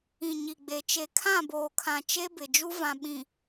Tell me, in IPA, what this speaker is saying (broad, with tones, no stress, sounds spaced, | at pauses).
ĩ˨ ɲ i˨ ɡ͡b e˨ t͡ʃ e˨ kʰ ã˦˨ b oː˨ kʰ ã˨ t͡ʃ e˦ b ɪ˨ d͡ʒ u˦ v ã˨ ɓ ĩ˨